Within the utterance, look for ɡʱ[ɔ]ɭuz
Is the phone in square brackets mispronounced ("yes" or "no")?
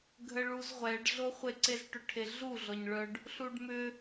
yes